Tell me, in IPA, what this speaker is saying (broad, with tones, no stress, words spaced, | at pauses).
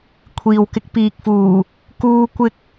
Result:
kʷʰiː˨wkɪ˧k̚ piː˨k̚fuː˨˩ | kuː˧kʷɪ˧k̚